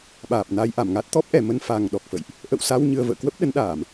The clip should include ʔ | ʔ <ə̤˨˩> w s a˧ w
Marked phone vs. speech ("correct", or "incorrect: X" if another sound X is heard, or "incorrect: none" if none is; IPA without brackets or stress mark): incorrect: ə̰˧˨